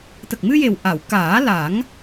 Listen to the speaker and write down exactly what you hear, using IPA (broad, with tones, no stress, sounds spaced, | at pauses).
t̪ ə˨˩ k̚ m ɨ˧ j e˨˩ w ʔ a˨˩˨ w k aː˨˩˦ l a˨˩˦ ŋ